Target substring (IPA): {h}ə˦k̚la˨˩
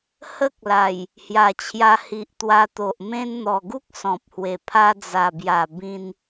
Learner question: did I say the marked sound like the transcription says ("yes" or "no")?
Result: yes